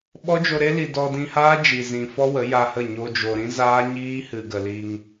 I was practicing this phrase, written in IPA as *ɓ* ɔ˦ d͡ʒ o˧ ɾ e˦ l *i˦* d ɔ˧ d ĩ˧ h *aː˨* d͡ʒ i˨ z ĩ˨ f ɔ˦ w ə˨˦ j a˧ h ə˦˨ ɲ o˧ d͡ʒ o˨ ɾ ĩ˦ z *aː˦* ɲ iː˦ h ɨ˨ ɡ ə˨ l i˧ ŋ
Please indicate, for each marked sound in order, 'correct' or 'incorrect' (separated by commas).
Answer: correct, incorrect, incorrect, correct